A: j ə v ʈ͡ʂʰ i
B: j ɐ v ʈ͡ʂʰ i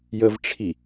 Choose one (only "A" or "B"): A